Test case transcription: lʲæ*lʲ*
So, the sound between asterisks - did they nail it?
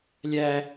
no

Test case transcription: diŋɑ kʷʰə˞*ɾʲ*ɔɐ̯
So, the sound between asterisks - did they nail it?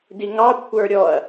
yes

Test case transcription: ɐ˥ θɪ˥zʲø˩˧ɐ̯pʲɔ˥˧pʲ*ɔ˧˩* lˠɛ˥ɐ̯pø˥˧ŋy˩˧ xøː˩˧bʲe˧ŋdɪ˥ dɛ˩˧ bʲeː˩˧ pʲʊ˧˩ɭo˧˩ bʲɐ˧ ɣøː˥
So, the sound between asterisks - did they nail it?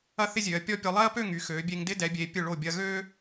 no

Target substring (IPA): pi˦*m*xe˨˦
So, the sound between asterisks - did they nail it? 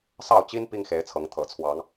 no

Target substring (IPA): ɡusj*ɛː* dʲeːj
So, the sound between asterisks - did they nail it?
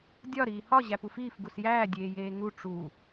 no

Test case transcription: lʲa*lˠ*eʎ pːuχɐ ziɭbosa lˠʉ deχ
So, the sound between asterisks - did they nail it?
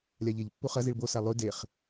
no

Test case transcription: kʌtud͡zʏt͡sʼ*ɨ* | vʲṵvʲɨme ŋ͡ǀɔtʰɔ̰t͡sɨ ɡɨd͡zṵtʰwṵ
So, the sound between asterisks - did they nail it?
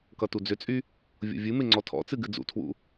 no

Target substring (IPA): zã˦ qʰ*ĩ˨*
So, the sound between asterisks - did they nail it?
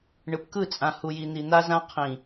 yes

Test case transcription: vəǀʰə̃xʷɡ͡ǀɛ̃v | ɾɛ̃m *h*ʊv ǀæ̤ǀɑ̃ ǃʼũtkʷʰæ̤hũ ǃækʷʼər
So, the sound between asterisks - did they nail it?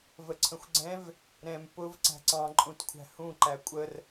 no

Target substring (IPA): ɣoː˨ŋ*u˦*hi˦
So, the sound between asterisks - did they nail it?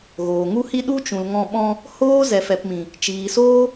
yes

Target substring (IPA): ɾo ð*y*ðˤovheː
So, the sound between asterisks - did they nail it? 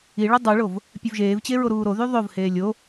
yes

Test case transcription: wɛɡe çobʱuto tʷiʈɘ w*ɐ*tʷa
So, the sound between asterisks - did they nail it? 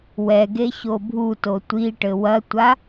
yes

